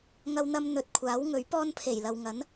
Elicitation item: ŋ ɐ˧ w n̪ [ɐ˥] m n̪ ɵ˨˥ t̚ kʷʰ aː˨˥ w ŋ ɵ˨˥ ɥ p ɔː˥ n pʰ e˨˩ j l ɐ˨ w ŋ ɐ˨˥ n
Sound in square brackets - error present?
yes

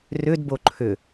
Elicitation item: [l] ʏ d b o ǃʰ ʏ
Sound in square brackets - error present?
yes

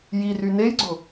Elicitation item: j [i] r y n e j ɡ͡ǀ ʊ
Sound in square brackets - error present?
no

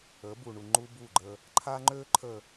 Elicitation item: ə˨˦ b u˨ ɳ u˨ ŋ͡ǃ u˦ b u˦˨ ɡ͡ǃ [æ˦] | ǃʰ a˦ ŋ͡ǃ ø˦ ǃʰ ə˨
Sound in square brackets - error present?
yes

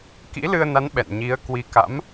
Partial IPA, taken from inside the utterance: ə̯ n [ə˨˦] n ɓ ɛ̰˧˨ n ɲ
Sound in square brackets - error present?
yes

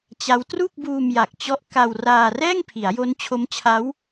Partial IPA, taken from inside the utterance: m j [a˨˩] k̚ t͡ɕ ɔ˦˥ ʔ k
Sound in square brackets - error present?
no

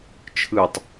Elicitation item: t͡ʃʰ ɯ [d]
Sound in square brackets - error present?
yes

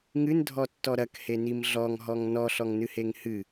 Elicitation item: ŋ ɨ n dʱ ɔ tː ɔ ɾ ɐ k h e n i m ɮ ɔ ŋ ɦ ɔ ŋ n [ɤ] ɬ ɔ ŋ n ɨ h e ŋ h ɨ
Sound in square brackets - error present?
yes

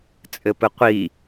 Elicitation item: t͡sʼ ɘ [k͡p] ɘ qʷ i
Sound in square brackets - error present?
yes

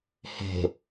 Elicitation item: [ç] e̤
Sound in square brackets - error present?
yes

